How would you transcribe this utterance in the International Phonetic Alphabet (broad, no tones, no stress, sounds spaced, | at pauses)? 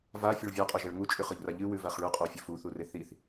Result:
v a fʲ ɵ ɭ vʲ a qʼ o ʒ ɐ ɭ ŋ u t͡ʃʼ ʉ χ ɵ ʎ r a ʎ ɨ w ʉ v a χ ɭ ʉ qʼ o fʲ ɵ f u θ u r e θ i θ